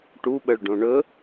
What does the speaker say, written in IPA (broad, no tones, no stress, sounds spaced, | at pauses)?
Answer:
ʈ u ɓ ə ɭ ɖ õ ɳ ɵ